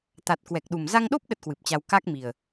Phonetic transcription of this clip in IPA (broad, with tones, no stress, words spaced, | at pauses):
t̪a˨˩t̚ kwɛ˨˩k̚ɗu˨˩m za˧ŋɗo˦˥p̚ ɗə˦˥t̚kwɨ˨˩p̚t͡ɕa˧w ka˦˥k̚mi˨˩ə̯